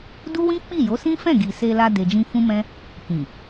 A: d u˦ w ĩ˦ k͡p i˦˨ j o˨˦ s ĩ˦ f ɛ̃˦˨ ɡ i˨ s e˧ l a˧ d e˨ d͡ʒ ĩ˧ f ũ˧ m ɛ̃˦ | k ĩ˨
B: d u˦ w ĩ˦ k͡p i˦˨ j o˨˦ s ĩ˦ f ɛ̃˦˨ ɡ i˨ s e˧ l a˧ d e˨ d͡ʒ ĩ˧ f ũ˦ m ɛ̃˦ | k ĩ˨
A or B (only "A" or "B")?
B